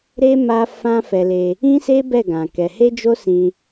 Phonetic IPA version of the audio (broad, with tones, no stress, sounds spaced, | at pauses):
ɾ e˦ m a˦ f ã˦ f ɛ˧ l e˧ | ĩ˦ s e˦ b ɛ˦˨ ɡ ã˧ k ɛ˧ h e˦ d͡ʒ o˦ s ĩ˧